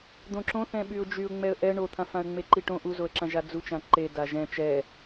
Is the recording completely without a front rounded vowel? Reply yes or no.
no